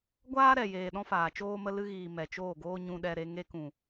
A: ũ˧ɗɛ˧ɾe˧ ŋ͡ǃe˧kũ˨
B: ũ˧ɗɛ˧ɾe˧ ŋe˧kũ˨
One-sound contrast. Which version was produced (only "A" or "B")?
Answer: B